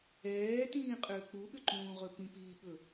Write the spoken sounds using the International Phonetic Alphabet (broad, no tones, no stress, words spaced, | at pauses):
ɛːtĩːqʼʏː k͡puɓʏǃũːʁɵ pĩpiːɓɵ